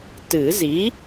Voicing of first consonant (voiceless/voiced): voiceless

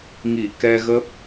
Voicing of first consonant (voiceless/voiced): voiced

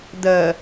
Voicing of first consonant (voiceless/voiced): voiced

